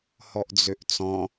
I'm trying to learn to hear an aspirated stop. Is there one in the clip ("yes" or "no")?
no